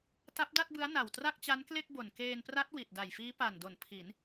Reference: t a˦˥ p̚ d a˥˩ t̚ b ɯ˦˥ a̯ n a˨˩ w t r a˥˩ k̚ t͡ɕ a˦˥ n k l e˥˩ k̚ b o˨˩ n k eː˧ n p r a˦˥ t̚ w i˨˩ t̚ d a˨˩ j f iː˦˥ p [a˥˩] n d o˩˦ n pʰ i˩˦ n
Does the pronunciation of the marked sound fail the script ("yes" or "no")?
yes